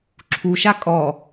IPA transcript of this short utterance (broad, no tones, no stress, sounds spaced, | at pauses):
ǁʰ u ʃ a kʼ ɔ